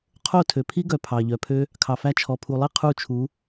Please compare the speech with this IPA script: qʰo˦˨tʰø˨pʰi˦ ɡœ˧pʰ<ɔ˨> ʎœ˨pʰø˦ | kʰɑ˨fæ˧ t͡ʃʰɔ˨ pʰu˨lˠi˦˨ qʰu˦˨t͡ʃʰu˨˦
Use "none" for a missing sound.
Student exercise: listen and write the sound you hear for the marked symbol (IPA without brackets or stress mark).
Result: ɑ˨